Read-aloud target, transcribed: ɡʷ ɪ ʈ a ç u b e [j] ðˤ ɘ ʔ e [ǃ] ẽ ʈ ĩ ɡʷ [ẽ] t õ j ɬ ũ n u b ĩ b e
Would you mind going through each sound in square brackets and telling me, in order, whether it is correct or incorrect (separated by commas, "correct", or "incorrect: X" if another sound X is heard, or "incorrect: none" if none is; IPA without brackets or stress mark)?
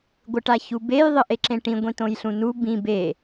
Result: correct, incorrect: ǁ, incorrect: ĩ